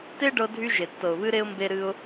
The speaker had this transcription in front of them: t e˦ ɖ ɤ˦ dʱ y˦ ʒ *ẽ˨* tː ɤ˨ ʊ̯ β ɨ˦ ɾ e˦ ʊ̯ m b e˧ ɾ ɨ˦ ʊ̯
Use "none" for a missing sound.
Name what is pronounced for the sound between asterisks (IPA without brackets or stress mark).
e˨